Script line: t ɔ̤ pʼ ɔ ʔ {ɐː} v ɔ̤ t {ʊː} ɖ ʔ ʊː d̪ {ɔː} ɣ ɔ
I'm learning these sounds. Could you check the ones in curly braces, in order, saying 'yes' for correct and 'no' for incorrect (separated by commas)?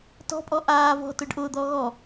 no, yes, yes